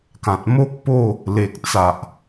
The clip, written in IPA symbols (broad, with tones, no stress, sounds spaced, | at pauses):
k ã˨ t̚ m o˦ k̚ p o˥˧ | l e˨ k̚ t͡s a˨ ʔ